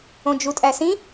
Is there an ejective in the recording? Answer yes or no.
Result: yes